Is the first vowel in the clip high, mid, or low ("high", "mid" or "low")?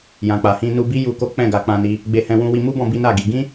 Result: low